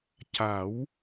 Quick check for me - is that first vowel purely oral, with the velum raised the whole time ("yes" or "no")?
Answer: yes